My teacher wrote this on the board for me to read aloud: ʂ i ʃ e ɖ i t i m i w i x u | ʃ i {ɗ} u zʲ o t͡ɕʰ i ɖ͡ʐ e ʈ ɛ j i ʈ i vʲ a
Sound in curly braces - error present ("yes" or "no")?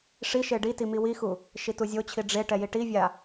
yes